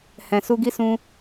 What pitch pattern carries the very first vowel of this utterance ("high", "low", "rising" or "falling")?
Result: low